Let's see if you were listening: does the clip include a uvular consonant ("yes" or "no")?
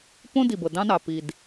no